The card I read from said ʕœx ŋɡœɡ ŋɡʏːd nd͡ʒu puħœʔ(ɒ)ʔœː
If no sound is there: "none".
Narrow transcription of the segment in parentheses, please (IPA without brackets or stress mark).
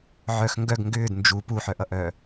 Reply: ʌ